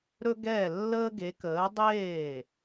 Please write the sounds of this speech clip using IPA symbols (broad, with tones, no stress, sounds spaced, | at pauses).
ɾ ɵ˥ ɡ ɛː˥˩ lː əː˥ ɡ e˨˥ k əː˨˥ dˤ eː˥˩